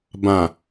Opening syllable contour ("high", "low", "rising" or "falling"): low